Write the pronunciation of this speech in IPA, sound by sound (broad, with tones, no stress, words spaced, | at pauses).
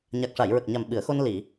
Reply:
ɲa˨˩k̚ʂa˨˩˨jɹə˨˩k̚ɲa˨˩m ɓɨ˨˩˦ə̯xo˧n li˨˩˨